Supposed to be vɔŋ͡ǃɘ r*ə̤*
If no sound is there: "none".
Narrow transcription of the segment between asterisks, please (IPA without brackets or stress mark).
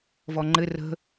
ə̤